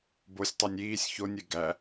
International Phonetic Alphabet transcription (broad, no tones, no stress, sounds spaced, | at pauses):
b o sʲ tˤ u nʲ iː sʲ ç o nʲ e ɡ æ